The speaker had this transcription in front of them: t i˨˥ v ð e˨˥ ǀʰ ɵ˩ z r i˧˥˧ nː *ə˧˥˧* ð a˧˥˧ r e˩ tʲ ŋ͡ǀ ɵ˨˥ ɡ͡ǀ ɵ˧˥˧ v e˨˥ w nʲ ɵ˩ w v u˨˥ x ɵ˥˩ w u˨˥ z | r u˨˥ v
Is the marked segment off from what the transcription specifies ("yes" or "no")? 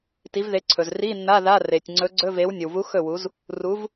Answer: yes